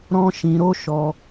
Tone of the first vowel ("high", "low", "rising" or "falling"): high